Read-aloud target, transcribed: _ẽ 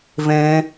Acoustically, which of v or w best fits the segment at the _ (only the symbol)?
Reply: v